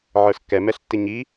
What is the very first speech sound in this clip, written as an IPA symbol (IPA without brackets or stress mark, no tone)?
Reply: ʕ